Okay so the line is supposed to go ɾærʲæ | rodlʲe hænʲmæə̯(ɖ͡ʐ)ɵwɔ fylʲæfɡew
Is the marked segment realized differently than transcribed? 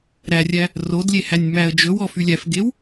yes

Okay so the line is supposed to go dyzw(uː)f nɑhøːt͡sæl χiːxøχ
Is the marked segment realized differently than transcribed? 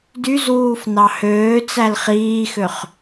no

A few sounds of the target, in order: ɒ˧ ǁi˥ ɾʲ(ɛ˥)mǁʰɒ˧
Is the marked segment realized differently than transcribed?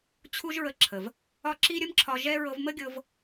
yes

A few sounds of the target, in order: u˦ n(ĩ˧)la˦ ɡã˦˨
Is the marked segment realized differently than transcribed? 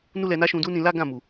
no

